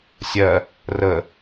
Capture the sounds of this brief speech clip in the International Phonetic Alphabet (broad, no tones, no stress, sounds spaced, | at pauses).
sʲ ɜ | r ə